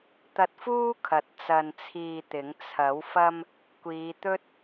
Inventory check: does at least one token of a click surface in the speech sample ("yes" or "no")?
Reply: no